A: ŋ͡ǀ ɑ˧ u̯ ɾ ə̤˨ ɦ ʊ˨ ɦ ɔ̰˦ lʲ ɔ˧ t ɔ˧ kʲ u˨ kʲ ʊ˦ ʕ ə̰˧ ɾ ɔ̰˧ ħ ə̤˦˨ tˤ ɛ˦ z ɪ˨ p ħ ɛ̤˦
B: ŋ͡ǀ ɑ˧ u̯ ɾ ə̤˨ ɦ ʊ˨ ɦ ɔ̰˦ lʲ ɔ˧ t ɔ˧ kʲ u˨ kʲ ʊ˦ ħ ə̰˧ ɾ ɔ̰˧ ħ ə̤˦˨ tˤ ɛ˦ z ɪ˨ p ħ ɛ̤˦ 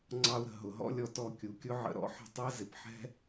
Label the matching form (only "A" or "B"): A